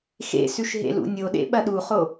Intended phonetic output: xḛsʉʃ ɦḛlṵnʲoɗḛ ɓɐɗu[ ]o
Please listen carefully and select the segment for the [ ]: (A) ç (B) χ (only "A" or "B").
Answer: B